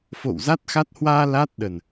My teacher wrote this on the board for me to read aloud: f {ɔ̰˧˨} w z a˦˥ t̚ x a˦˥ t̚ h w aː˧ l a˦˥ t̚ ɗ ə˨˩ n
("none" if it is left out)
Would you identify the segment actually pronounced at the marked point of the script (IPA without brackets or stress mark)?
o̰˧˨